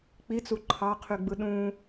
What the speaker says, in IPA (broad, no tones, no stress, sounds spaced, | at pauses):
k͡p i t͡s u ǃʰ ɑ qʰ y ɡ͡b ɯ ɗ ũ